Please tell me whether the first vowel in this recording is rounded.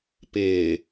no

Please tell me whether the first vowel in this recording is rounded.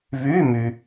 yes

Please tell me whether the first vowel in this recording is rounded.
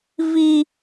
no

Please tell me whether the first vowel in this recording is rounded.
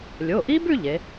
yes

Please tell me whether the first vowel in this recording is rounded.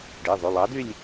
no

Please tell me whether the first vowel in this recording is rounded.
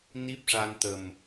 no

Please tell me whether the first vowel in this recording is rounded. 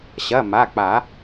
no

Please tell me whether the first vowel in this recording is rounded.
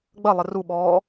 no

